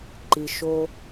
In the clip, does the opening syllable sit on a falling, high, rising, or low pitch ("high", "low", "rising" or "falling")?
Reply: low